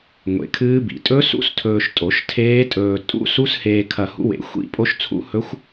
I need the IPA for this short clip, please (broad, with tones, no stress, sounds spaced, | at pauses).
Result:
ŋʷ ḛ˨˩˦ kʰ ɨː˦˥ b ḭ˨˩˦ tʼ ɵ˦˥ s ṵ˦˥ s tʰ ɵː˧ ʃ tʼ o˨˩˦ ʃ tʰ eː˦˥ tʼ ɵː˧ tʼ ṵ˦˥ s u˦˥ s h eː˧ kʰ ɐ˧ h ṵ˦˥ w ḛ˨˩˦ xʷ ḭ˦˥ pʼ o˦˥ ʃ t͡sʰ ṵ˦˥ h ɵ˦˥ xʷ